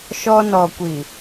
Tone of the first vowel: high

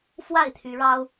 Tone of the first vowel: falling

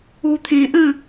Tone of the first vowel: low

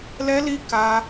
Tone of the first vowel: high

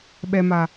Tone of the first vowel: low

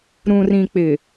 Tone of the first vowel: low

